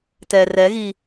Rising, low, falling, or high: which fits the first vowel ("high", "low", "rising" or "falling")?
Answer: low